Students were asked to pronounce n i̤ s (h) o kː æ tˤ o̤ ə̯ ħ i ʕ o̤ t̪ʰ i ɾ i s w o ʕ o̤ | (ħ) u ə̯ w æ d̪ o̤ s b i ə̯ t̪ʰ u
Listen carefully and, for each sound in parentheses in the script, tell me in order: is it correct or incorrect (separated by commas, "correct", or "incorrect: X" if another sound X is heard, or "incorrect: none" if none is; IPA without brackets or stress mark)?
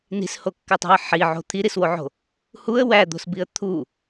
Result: correct, incorrect: h